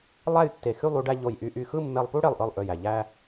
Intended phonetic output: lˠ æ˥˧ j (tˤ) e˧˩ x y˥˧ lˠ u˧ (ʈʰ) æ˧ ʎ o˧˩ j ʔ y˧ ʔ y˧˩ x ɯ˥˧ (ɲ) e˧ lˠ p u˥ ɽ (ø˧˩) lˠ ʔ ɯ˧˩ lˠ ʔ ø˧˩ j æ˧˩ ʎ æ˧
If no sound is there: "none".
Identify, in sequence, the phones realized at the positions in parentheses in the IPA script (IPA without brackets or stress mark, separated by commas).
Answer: tː, ɖ, mː, e˧˩